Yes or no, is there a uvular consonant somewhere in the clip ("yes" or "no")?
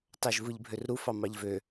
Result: no